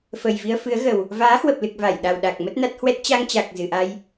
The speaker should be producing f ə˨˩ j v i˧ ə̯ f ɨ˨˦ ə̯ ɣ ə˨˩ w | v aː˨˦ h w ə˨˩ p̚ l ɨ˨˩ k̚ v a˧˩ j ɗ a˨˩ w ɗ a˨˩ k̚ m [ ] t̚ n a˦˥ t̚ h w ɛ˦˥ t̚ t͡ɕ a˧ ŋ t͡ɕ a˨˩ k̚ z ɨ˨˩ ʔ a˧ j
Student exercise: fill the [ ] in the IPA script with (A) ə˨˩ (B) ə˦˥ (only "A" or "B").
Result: B